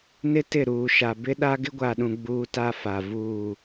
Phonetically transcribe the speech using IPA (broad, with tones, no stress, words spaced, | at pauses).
nɪ˦tɪ˦˨ɾuː˨ ʃa˨bɪ˦ɗa˦ ɡɪ˦ɡʷa˨ɗũ˨ ɡ͡buː˦ta˦fa˨ vuː˦˨